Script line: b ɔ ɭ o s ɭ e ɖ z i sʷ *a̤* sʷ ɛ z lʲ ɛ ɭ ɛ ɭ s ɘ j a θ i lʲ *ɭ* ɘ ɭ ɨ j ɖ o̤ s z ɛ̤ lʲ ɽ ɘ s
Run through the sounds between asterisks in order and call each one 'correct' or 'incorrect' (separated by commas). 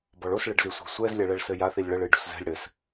correct, correct